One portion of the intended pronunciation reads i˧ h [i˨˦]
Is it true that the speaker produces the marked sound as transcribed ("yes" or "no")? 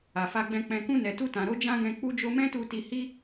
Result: no